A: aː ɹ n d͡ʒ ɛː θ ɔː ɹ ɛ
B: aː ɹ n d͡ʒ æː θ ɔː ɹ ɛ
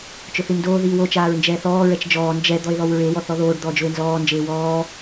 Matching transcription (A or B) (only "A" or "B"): A